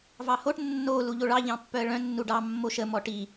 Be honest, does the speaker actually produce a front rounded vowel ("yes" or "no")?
yes